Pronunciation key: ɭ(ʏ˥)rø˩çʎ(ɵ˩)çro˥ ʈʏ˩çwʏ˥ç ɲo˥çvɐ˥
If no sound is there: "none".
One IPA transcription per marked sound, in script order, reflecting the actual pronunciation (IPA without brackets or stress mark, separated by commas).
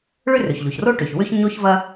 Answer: ʏ˥, o˩